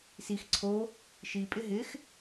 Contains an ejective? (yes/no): yes